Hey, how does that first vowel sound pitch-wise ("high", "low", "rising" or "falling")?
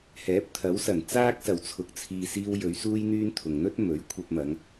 rising